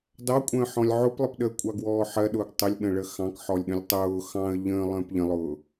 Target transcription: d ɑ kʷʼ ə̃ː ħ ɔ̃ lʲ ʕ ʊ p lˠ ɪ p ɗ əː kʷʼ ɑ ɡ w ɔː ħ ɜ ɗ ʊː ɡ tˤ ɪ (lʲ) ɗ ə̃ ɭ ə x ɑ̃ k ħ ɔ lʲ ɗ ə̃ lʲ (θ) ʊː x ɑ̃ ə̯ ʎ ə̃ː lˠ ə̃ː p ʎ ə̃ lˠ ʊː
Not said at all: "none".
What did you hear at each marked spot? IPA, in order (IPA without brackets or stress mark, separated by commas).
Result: lʲ, tˤ